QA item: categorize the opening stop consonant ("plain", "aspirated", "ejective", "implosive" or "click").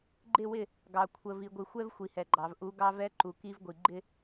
click